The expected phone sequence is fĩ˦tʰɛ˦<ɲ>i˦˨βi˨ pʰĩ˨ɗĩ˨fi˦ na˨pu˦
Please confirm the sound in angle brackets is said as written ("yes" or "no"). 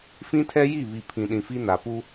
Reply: no